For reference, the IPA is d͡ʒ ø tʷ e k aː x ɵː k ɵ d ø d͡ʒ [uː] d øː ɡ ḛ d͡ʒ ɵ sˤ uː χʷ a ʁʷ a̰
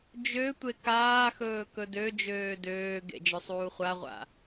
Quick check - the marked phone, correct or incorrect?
incorrect